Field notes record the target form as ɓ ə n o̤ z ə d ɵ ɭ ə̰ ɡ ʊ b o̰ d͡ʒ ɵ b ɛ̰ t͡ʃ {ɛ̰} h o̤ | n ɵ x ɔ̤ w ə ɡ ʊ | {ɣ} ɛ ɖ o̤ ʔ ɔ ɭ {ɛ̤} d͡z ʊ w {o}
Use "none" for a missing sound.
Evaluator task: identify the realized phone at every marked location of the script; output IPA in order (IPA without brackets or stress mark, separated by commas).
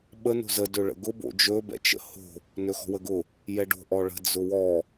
ə̰, j, ə̤, ɔ